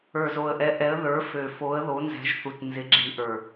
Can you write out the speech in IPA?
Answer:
ə˞˨˩ z o˨˩ ə̯ ʔ ɛ˨˦ ʔ ɛ˨˦ ə̯ ð ə˞˨˦ f ø˨˩ f o˨˦ ə̯ ð o˨˦ n z ɛ̤˨˦ ʒ θ u˨˩ t n z ɪ˨˦ ɡ͡ǁ i˨˦ ʔ ə˞˨˩

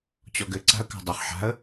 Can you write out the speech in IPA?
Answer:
t͡ɕ ɔ ɡ ɘ ǀ a̤ ə̯ k a̤ dˤ ɘ χ ħ a̤ ə̯

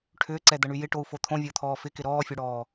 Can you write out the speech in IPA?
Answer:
ʈʰ ʏː ǀ ɛ d̪ ɐ ɳ y j ɪ ʈ o u̯ f o t̪ʰ õ vʲ o t̪ʰ ɔː f ɪ k ɪ ɾ ɔː fʲ o ɽ ɔː

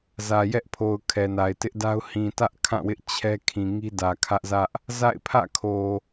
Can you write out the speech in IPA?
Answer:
z ä˨ j ɛ˦ ʔ pʰ o˨ ʊ̯ kʰ ɛ˨ n a˨ ɪ̯ t ɪ˦ ʔ d a˦ ʊ̯ h ĩ˨ t ä˦ ʔ kʰ ã˦˨ w ɪ˦ ʔ t͡ɕʰ ɛ˦ kʰ ĩ˨ ŋ i˦ d ä˨ kʰ ä˦ ʔ z ä˦ ʔ | z a̰˦˨ ɪ̯ pʰ ä̰˦˨ kʰ o˨

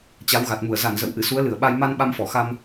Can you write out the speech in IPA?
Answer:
t͡ɕ a˨˦ w ɣ a˨˩ t̚ m u˧˩ ə̯ z a˧˩ n z ə̰˧˨ w ʔ ɨ˧˩ s u˨˦ ə̯ l ɨ˧˩ ə̯ ɓ a˧ j m a˧ n ɓ a˧ m f ɔ˧˩ x a˧ m

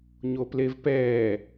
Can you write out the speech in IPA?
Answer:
ɲ o p l e v p ɛː

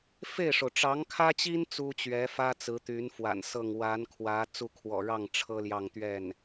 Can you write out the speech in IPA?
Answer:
f e˥˩ ɪ̯ ʂ o˩ ʊ̯ ʈ͡ʂ ɑ˧˥ ŋ kʰ ä˥ t͡ɕ i˥ n t͡s u˥ t͡ɕ ɥ ɛ˧˥ f ä˥ t͡s ɹ̩˧˥ t̪ y˧˥ n f w a̰˨˩ n s ɤ˥˩ ŋ w a˧˥ n kʰ w ä˧˥ t͡s u˥˩ kʰ w ɔ̰˨˩ ɻ ɑ˥˩ ŋ ʈ͡ʂʰ ɤ˥ l j ɑ˥˧ ŋ t̪ ɥ ɛ˥˩ n

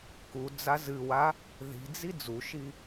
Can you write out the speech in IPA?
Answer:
k u d͡z a z ɨ w a | ð i̤ d͡z i d͡z u ʃ i

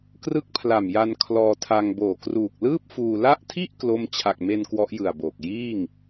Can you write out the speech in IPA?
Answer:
k r ɯ˥˩ k̚ pʰ l a˨˩ m j a˧ n kʰ l ɔː˧ tʰ a˧ ŋ b oː˨˩ k r uː˨˩ k̚ l ɯː˥˩ p̚ f uː˧ l a˦˥ ʔ tʰ i˥˩ ʔ k l o˥˩ m t͡ɕʰ a˨˩ k̚ m e˧ n k w ɔ˦˥ ʔ j ɯ˨˩ a̯ b oː˨˩ k̚ j iː˥˩ ŋ

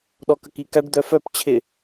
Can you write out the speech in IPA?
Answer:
ɗ ɔ k ə k i k a ɖ d̪ œ f œ p t͡ɕʰ ɪ

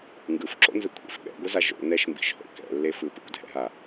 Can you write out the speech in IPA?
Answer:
ŋ ɡ ɯ f ǁ o̰ n z ɯ kʷʰ ḭ f ɓ ɛ̰ ɡʷ ɯ z a ʒ o̰ n ɛ ʃ m b ḭ ʃ h o̰ k ɛ̰ lː e f ɯ p ɯ kʷ dʱ ɛ̰ ɦ a

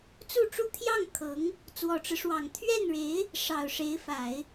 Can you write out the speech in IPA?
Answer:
t͡s u˥˩ ʈ͡ʂ u˥ t̪ʰ j ɑ˥˩ ŋ kʰ ɤ˧˥ ŋ | t͡s w ɔ˨˩ ʈ͡ʂ ɻ̩˦ ʂ w ɑ˨˩ ŋ t̪ʰ ɥ ɛ˥˩ n ɻ e˧˥ ɪ̯ | ʂ ɑ˨˩ ʊ̯ ʂ e˧˥ ɪ̯ f a˨˩˦ ɪ̯

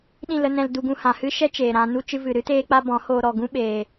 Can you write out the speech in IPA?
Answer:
ɗ ĩ˦˨ l ə˧ n ɛ̃˧ l d u˧ ɡ ũ˧ h ã˨ h ɨ˦ ʃ ɛ˦ t͡ʃ eː˨ ɾ ã˧ n u˦ t͡ʃ ɨ˧ v ɨ˨ ɾ ɨ˦ t eː˦ k͡p a˦ b ɔ̃˨˦ h oː˧ ɾ ɔ˨ ɡ ũ˧ ɓ eː˨

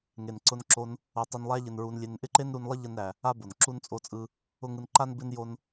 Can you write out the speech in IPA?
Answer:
ŋ e˨ n ǀ ʊ˧ n ǁ o˧ n | o˧ tˤ u˧ n lˠ æ˦ ʎ ɪ˧ n ɹ u˧ n lʲ e˧ n ʔ ɪ˦ ǃ e˦ n ɾ u˧ n lˠ ə˦ ʎ ə˦ n ɾ æ˧ | a˦ b o˨ n ǁ u˦ n t͡sʼ o˦ t͡sʼ ɯ˦ | ʊ˦ ŋ ɯ˧ n ǃ a˦ n b ɪ˦ n j o˦ n

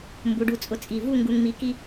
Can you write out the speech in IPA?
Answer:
m b u˩˧ ɖ u˧˩ t͡sʼ ʊ˧ t͡sʼ i˧˩ v u˥˧ ŋ ɡ u˧ ŋ m i˧ k i˥

